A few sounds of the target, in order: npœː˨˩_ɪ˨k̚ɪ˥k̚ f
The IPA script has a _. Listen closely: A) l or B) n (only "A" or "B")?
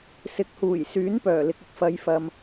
A